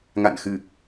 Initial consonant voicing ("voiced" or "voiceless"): voiced